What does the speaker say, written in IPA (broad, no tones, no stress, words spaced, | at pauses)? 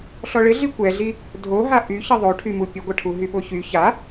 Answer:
ɬɔɭɪɮi kʷɛɮi | dʱoɦa ʔyçə ðˤoʈʰymu pʲəɡʷɐʈʰu ɦyɓoçy ça